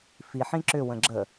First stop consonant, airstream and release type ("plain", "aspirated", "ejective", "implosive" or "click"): click